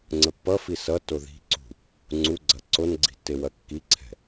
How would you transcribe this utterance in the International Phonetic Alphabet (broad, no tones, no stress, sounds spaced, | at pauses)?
ŋ͡ǀ ə pː ʌ f i s ʌ t o ð i̤ ǀ ṳ | ŋ͡ǀ u ɡ͡ǀ ɐ ǀ o n ɡ͡ǀ i̤ tː e w ɐ kː i ǀʰ ɛ̤